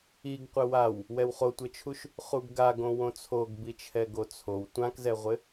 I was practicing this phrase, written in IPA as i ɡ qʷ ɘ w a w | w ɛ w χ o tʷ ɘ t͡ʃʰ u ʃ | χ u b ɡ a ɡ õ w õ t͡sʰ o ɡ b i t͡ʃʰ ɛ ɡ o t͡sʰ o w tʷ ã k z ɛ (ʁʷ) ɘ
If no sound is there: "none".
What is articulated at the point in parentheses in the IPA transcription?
ʁʷ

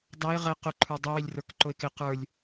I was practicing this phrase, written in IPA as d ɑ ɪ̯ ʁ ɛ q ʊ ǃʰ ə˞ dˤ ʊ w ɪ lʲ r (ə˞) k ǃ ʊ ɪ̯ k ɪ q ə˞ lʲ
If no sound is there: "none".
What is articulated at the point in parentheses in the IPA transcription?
ə˞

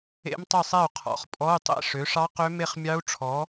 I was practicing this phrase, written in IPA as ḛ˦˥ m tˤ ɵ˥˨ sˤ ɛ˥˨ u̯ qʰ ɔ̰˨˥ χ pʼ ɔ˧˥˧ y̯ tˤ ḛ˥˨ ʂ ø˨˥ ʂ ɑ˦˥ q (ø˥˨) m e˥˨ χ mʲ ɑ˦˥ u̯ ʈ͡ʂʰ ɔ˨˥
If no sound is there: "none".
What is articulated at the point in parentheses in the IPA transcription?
ø˦˥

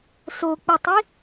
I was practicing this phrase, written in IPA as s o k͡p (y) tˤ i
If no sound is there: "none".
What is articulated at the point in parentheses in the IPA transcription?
i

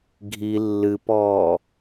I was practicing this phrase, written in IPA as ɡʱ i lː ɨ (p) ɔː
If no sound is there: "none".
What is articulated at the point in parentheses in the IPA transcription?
p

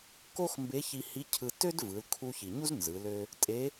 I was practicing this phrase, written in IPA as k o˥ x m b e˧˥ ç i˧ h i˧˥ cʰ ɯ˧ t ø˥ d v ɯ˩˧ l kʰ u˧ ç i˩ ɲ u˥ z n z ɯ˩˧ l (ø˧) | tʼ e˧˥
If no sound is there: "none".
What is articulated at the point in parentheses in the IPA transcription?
ø˧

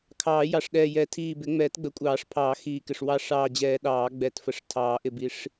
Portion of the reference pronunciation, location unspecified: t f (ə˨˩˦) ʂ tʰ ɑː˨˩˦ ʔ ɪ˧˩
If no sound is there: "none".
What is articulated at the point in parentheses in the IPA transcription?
ə˨˩˦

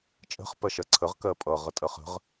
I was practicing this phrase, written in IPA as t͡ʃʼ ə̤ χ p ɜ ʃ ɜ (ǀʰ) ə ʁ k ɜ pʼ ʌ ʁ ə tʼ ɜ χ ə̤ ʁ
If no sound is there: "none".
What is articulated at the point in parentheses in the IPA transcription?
ǀʰ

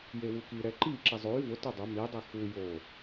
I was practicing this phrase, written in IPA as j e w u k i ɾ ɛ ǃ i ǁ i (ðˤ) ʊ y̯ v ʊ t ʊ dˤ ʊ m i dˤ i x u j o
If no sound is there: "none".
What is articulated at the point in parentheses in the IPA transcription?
zˤ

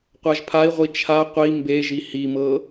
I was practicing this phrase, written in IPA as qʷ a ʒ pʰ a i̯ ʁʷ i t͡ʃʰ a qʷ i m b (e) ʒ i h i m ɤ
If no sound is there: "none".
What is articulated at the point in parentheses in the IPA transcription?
e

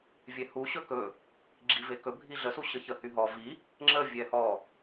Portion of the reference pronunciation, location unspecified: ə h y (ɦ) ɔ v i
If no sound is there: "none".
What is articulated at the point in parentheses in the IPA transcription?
ɦ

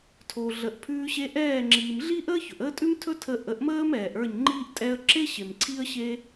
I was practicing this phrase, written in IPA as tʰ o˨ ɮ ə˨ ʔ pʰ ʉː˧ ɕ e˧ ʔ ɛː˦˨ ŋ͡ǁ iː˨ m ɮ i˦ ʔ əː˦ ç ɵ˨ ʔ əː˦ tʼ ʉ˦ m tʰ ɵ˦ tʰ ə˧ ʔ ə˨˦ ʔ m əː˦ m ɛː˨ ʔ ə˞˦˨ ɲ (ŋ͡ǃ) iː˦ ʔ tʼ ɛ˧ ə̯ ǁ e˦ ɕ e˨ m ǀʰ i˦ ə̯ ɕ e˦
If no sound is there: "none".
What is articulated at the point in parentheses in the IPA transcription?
ŋ͡ǃ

